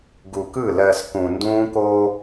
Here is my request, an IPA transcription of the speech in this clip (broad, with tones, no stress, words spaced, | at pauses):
ɡu˨kɯ˦˨ lɜ˨s kũ˨ ndũː˦koː˦